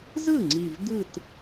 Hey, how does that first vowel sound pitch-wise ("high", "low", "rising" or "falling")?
falling